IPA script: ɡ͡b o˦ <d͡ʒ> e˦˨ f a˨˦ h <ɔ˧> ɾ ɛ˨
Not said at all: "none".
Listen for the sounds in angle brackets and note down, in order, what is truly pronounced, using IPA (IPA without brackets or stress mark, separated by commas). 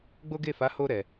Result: ɡ, o˧